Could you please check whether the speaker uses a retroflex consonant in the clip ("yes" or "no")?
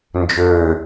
no